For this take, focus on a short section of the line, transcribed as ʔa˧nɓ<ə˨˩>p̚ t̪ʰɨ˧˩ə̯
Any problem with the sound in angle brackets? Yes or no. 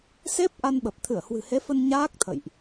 no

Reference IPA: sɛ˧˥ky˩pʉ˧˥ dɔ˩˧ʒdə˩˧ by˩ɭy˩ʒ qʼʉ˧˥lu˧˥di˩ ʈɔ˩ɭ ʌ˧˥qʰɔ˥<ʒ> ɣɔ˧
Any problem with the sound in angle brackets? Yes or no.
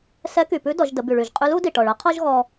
no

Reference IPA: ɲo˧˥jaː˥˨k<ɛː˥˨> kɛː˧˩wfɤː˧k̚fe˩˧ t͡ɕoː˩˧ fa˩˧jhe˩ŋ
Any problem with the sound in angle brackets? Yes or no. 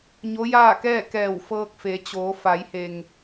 no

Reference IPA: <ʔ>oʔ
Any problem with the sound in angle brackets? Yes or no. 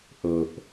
no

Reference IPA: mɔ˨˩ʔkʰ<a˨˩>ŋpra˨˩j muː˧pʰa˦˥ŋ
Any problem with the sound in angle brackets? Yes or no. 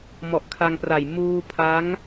yes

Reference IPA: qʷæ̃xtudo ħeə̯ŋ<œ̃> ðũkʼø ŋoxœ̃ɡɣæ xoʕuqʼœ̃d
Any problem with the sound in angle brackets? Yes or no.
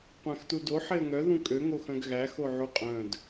yes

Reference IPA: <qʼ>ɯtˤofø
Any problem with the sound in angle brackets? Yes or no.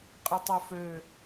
no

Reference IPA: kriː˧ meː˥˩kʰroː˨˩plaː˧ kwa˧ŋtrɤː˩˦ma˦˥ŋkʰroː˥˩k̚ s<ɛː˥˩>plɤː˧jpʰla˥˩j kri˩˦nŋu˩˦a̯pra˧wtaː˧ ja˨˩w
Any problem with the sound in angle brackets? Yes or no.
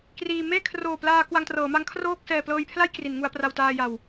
yes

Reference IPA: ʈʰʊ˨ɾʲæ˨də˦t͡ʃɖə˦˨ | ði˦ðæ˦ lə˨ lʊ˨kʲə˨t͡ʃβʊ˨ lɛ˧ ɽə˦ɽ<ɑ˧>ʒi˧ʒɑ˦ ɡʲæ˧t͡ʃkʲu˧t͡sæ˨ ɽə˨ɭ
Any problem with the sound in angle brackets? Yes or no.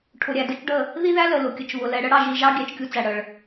no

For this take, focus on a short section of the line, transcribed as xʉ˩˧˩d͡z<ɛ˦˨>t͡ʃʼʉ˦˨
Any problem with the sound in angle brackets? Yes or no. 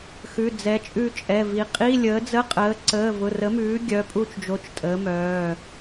yes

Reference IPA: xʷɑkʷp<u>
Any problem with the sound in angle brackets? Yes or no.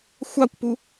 no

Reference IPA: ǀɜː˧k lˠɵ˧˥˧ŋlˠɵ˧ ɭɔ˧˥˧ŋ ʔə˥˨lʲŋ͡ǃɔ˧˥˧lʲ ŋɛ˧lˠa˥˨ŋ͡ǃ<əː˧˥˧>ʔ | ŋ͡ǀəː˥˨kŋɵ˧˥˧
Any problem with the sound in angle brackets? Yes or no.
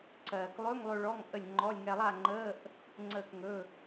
no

